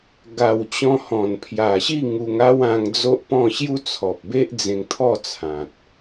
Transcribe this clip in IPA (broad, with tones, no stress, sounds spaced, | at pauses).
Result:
ɡ a˨˩ w t͡ɕ ɔ̃˧ h ɔ̃˨˩ n pʰ j a˨˩ ɕ i˥˧ ŋ u˧ ŋ a˦ w ã˧ ŋ d͡z o˦ ʔ p ɔ̃˥˧ ɕ j u˦ t͡sʰ ɔ˨ p̚ b e˦ ʔ d͡z ẽ˧ ŋ t̪ʰ ɔ˥˧ t͡sʰ ã˨ t̚